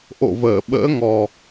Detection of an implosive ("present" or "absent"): present